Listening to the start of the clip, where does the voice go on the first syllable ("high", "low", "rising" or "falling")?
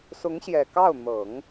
rising